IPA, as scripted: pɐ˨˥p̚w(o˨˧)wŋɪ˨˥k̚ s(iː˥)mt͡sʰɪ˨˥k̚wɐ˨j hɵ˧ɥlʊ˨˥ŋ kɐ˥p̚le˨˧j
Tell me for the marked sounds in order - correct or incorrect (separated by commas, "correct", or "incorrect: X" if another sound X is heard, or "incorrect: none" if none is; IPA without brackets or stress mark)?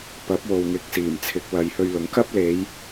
incorrect: o˨, incorrect: iː˨˩